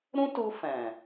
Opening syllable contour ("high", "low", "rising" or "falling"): high